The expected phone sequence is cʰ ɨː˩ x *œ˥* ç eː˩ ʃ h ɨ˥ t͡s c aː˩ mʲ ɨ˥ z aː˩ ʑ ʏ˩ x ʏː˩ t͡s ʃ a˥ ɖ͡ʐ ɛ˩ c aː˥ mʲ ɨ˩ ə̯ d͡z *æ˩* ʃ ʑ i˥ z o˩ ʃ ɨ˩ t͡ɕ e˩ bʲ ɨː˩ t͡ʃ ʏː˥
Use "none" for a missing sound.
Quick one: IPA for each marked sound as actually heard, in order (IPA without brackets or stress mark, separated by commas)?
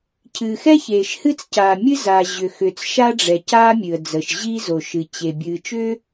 ɛ˥, ə˩